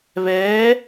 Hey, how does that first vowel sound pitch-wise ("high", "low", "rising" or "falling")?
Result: rising